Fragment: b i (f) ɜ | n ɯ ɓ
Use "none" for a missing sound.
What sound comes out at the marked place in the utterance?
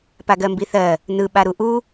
θ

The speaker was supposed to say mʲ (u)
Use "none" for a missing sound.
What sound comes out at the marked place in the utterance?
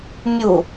u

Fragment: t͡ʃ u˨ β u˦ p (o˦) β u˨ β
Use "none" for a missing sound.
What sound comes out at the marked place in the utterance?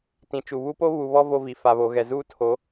o˦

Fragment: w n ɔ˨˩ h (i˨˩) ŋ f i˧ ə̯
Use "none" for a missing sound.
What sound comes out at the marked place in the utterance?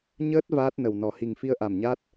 i˨˩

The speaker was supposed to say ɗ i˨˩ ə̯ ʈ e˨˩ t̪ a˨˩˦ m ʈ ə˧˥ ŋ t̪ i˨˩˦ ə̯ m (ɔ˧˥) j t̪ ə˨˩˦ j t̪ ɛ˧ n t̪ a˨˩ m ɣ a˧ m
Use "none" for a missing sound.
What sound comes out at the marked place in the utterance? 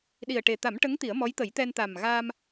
ɔ˧˥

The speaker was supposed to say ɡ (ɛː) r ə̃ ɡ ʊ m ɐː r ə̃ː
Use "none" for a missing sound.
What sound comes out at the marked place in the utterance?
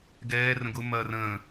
ɛː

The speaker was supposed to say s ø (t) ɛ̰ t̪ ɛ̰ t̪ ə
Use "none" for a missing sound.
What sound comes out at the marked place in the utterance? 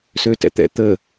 t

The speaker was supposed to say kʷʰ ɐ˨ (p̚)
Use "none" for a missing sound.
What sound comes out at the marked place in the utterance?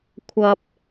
p̚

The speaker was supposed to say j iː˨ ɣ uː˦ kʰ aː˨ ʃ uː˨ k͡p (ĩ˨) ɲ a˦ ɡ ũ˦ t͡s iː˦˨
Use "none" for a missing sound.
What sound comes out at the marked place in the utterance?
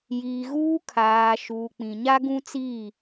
ĩ˨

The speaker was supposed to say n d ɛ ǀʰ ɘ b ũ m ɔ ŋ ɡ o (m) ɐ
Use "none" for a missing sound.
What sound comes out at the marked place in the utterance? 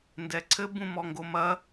m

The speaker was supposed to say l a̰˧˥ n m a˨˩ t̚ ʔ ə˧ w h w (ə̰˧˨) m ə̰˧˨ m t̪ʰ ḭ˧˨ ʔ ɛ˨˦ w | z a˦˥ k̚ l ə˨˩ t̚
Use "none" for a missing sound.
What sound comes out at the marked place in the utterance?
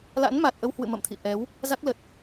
ɨ̰˧˨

